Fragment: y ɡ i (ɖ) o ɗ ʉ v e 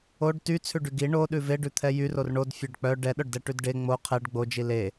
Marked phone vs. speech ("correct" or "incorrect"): incorrect